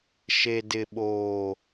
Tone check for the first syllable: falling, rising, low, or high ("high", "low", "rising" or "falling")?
low